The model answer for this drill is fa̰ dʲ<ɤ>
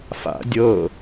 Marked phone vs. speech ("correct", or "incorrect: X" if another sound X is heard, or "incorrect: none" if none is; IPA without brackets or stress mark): correct